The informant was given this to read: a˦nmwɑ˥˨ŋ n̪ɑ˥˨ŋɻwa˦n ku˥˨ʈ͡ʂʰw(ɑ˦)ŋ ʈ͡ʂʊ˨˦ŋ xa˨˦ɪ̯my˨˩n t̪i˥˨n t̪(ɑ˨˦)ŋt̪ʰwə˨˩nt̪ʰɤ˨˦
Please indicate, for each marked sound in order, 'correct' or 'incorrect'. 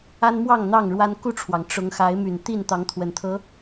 incorrect: ɑ˩, correct

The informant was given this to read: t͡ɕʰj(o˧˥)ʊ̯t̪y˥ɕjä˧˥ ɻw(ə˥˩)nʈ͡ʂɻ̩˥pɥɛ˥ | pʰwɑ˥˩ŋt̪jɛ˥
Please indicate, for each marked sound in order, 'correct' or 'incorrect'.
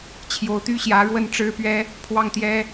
correct, correct

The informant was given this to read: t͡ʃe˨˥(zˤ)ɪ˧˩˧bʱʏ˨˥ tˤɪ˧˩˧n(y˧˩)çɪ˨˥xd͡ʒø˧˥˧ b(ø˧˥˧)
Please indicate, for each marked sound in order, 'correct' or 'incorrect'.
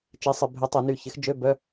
incorrect: sˤ, correct, incorrect: œ˧˥˧

